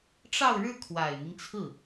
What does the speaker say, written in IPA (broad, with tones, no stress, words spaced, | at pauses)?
ʈ͡ʂɑ˥˧ʊ̯ɻɻ̩˥˩ kʰwa˨˩ɪ̯n̪i˦ŋt͡sʰɹ̩˥˩